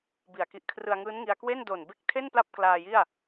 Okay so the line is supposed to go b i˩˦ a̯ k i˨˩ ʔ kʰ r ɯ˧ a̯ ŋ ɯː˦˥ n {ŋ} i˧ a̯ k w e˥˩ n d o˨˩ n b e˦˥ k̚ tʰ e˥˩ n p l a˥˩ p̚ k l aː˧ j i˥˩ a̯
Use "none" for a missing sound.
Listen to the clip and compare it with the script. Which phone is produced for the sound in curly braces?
ŋ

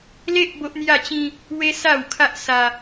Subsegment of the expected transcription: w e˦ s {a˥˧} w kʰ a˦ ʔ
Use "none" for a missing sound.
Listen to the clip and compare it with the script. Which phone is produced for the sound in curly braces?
a˥˧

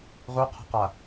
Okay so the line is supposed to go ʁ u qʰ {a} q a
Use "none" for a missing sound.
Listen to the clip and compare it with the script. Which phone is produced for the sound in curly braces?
a̤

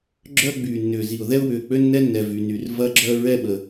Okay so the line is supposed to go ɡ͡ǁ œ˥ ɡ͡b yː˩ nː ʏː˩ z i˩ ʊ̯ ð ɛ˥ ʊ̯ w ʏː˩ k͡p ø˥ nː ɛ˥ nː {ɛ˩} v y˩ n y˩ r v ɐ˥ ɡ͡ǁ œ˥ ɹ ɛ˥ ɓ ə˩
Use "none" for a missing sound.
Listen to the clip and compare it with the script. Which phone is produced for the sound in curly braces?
ɛ˩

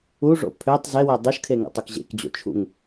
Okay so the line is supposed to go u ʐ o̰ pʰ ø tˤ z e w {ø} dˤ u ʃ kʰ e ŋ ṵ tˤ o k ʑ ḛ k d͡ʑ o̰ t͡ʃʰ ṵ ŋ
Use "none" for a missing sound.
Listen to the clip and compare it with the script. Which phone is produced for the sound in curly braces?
e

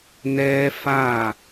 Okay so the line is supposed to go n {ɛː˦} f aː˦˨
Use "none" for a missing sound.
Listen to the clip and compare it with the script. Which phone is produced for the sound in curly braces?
ɛː˦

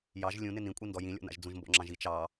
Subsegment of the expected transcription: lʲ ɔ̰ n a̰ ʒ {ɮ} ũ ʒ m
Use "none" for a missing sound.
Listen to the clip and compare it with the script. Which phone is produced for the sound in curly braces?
d͡z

